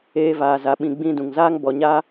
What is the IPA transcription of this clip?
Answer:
eː˧ v aː˨ z a˨ ɓ ĩ˨ ɡ͡b ĩ˧ d ũ˨ ŋ z aː˦ ŋ b ɔ˨ ɲ a˦

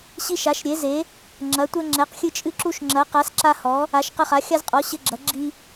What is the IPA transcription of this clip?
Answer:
ɕ i˦ ʃ a˨˥ ʃ ɾʲ e˨˥ z e˨˥ | ŋ͡ǁ ɐ˨˥ tʷ ɛ˦ ŋ͡ǁ ɛ˨˥ q xʲ ɨ˦ t͡ʃʼ ɨ˦ ǁ u˦ ʃ ŋ͡ǁ ɐ˨˥ q a˨˥ s ǁ a˦ h ɔ˨˥ | a˨˥ ʃ q ɐ˦ χ a˨˥ xʲ a˦ z qʼ ɔ˨˥ ɕ ɘ˦ ɡ͡ǁ ɐ˨˥ ɡ͡ǁ i˦

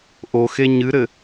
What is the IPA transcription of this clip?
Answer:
ʔ o x e ɲ ɨ ɾ ɘ

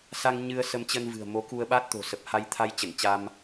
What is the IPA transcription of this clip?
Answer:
s a˧ ŋ ɲ ɨ˧ ə̯ s ə˧ m t͡ɕ ə˧ n v ɨ̤˨˩ ə̯ m o˨˦ k u˧ ə̯ ɓ a˦˥ t̚ t̪ o̤˨˩ s ə˨˩ p̚ h a˧ j t̪ʰ a˧ j t͡ɕ ə˧˩ n t͡ɕ a˧ m

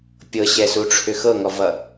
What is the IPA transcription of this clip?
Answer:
pʲ ɤ ɕ ɛ s u ʈ͡ʂʰ ʏ x ɤ ŋ ɔ v ʌ

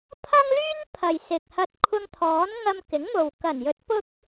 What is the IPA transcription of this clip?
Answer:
pʰ ɐ˥ ŋ l yː˥ n pʰ ɐ˨ j s ɪ˨ k̚ h ɐ˧ t̚ kʷʰ ɐ˧ ŋ t̪ʰ ɔː˨˥ n ŋ ɐ˧ m k ɪ˨˥ ŋ m o˨ w k ɐ˨˩ n j ɵ˨˥ t̚ p ʊ˥ k̚

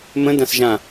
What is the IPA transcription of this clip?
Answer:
m ə̃ d ã s ʒ ã

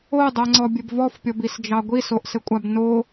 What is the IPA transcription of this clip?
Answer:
o dˤ ɜ ŋ͡ǀ ɔ bʲ ɘ b v ɔ f pʲ ɔ b i s d͡ʒ ɑ ɡʷ i s o ʔ s ɘ kʷʼ a b n o

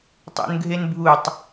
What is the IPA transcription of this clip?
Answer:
tˤ ṵ n ɡʱ e n bʱ u tˤ

